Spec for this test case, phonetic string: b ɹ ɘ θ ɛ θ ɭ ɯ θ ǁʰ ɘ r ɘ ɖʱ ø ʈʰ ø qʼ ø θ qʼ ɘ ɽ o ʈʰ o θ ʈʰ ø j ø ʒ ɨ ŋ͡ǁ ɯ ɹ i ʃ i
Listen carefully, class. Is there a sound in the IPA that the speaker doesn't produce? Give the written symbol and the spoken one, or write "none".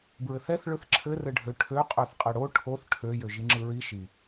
ɨ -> i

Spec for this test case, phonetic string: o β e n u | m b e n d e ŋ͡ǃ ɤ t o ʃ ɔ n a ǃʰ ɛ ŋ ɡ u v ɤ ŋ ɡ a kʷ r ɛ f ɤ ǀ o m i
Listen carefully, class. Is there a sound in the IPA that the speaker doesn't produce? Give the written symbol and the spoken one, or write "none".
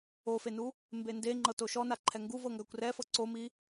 β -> f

